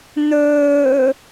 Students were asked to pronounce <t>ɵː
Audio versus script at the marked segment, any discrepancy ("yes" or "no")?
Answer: yes